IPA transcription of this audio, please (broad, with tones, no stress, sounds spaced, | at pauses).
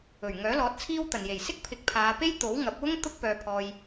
ɵ˨˩ ɥ ŋ œː˨˥ l ɔː˨˥ t̚ t͡sʰ iː˥ w t̪ ɐ˨ n j e˨˩ j s ɪ˥ k̚ pʰ ɪ˨˥ k̚ pʰ aː˨˧ p e˥ j t̪ o˨˥ w ŋ ɐ˨˥ p̚ w ʊ˥ ŋ t̪ ʊ˥ k̚ p œː˧ pʰ ɔː˧ j